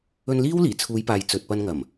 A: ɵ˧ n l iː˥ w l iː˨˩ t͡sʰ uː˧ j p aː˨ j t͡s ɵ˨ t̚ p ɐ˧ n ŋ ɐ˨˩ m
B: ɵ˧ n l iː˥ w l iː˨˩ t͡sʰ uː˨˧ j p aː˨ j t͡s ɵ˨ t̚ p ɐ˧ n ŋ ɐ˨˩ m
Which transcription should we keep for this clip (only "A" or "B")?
B